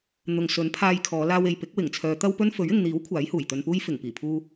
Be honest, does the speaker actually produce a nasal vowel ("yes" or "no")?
no